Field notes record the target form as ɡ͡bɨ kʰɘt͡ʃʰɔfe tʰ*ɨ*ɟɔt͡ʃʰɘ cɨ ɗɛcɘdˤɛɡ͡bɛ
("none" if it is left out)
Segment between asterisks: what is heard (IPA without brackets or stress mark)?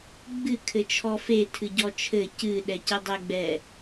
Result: ɨ